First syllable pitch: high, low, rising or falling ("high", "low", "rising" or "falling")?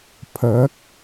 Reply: rising